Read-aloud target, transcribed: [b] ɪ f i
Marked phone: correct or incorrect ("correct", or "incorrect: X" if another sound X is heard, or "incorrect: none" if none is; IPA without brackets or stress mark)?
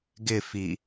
incorrect: ɡ